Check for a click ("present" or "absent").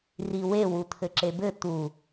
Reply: present